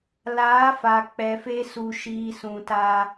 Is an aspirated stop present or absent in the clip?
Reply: absent